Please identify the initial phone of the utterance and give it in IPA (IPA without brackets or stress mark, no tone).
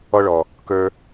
ɔ